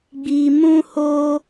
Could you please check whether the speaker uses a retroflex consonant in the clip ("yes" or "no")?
no